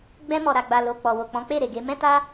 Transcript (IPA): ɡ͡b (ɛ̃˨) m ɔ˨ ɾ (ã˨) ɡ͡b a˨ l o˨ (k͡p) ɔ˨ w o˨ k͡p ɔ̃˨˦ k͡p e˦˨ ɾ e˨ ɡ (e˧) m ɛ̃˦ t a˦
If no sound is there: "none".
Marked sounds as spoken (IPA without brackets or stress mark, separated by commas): ɛ̃˧, a˨, k͡p, e˧